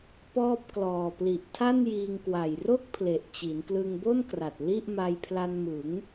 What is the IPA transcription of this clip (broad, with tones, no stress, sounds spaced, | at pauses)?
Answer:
p ɔː˥˩ p̚ k l ɔː˨˩ p l i˨˩ ʔ tʰ a˥˩ n j iː˧ ŋ k w a˨˩ j r o˥˩ k̚ pʰ l e˨˩ ʔ t͡ɕ i˩˦ n k l ɯ˧ ŋ b o˥˩ n k r a˨˩ t̚ l i˥˩ ʔ m a˧ j pʰ l a˧ n m ɯ˩˦ ŋ